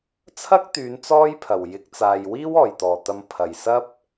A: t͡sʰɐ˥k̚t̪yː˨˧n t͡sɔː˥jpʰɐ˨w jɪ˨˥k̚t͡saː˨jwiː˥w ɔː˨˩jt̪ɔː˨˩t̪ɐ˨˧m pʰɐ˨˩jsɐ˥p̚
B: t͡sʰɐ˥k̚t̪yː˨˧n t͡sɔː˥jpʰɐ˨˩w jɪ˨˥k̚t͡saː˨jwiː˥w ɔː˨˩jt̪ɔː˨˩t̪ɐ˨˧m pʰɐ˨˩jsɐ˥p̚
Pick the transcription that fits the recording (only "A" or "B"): B